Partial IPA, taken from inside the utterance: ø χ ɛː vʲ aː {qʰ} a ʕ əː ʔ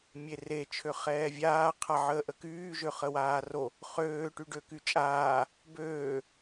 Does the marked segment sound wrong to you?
no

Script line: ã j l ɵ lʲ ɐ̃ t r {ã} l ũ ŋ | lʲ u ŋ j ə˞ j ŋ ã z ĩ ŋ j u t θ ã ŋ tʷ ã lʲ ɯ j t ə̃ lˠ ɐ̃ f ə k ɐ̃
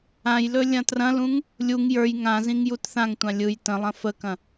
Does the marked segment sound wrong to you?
yes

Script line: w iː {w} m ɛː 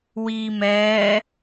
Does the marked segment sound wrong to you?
yes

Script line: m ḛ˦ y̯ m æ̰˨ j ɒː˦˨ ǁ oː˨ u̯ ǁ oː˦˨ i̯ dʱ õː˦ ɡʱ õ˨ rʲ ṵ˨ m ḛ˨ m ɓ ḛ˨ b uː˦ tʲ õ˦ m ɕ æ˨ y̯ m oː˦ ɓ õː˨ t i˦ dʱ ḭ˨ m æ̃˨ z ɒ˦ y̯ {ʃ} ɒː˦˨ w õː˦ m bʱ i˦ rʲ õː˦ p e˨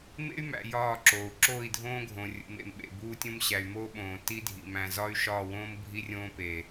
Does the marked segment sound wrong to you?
no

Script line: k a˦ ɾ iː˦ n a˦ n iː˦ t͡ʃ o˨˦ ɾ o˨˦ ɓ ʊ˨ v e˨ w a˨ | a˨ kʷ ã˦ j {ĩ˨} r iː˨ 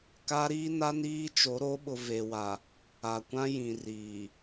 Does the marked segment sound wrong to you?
no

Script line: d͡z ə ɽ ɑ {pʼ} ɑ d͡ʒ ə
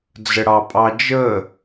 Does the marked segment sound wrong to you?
no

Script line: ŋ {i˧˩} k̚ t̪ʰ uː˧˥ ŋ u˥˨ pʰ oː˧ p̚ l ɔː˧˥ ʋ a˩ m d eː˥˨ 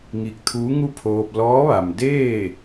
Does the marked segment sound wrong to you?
no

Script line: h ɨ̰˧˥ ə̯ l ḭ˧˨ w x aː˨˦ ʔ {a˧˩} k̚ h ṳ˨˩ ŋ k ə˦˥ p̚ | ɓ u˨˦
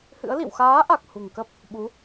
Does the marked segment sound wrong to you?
yes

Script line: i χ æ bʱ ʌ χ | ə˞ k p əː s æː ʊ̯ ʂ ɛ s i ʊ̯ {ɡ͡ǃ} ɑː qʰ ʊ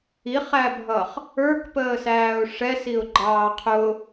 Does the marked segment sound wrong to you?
no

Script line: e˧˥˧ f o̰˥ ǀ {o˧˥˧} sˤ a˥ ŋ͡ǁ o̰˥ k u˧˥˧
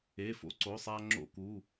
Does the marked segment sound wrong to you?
no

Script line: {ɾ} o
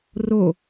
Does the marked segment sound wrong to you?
yes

